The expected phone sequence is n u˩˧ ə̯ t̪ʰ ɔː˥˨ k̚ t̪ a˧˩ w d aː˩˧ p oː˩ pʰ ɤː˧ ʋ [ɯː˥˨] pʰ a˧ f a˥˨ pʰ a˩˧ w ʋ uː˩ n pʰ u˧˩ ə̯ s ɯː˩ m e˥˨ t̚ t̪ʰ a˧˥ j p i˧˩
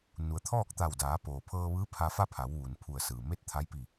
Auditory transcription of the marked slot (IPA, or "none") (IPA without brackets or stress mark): ɯː˧˥